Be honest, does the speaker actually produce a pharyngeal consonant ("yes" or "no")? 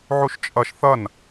yes